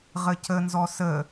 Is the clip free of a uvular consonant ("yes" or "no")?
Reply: no